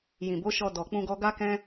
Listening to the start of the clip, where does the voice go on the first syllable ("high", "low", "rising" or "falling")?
low